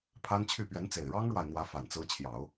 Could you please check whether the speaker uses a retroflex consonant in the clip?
yes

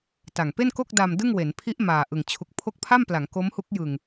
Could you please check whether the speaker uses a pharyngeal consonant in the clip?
no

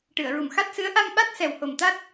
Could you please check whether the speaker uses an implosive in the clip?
yes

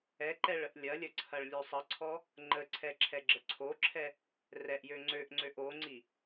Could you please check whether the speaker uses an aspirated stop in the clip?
yes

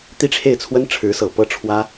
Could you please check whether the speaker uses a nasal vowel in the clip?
no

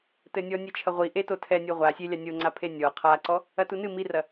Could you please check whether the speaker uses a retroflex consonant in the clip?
no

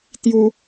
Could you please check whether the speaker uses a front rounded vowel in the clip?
no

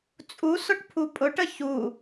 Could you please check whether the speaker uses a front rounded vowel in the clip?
no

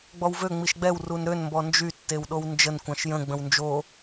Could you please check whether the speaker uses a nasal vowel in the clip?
yes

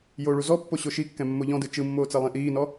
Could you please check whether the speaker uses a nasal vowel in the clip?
yes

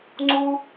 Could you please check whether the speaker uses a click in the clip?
yes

